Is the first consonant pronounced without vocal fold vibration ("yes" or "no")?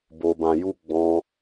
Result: no